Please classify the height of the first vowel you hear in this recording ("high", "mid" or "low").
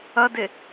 low